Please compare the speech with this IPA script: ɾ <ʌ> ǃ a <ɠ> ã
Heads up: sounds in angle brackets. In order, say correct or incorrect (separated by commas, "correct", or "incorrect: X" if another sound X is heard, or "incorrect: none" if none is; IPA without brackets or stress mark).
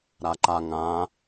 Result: incorrect: a, incorrect: ŋ